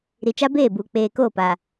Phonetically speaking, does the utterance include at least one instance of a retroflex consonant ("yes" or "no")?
no